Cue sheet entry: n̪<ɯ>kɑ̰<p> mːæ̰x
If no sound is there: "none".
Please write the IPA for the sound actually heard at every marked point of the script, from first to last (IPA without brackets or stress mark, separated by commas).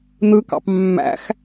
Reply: ɯ, p